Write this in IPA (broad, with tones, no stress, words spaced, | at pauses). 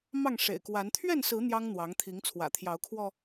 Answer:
mɑ˥˨ŋʂḛ˨˩ɪ̯kwa˨˦n t̪ʰɥɛ˥˨nsɹ̩˨˦ n̪jɑ˦ŋn̪wɑ˨˦ŋt̪ʰi˨˦ŋ t͡sʰwä̰˨˩t̪ʰjɑ˨˦ʊ̯kʰwɔ˧